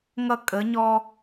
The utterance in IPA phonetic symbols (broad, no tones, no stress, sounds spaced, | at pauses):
ŋ ʌ kʼ ə ɲ ɔ